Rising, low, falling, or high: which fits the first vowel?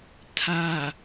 low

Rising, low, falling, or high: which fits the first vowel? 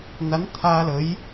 rising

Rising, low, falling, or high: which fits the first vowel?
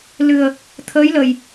low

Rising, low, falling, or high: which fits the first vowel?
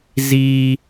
high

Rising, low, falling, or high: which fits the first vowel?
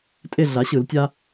falling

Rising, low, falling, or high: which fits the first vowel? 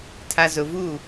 high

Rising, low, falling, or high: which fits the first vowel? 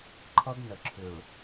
high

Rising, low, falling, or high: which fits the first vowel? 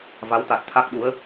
rising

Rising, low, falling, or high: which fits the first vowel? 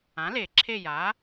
rising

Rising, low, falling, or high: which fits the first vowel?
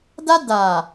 high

